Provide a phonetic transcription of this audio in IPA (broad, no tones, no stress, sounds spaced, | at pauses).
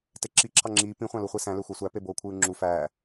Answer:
t e ǁ i ǁʰ ɑ ŋ͡ǁ iː p ĩ χʷ ɑ̃ l u χʷ i s æ̃ l ø xʷ æ sʷ æ p e b oː kʷʰ ɯː ŋ͡ǁ u f æː